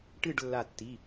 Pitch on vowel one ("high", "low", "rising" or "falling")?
falling